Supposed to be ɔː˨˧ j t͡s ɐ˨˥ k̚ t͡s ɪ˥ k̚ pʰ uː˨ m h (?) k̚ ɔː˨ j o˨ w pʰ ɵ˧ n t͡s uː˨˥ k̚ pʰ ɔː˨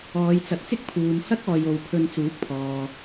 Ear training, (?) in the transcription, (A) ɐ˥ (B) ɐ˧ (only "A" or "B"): A